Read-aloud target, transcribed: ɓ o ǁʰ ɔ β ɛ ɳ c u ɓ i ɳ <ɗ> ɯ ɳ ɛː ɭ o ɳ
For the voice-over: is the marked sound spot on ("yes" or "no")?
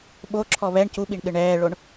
yes